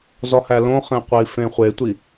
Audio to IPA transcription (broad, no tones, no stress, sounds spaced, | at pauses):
z ɒ h æ l õ χ ẽ qʷ e i̯ f ẽ χʷ e tʷ i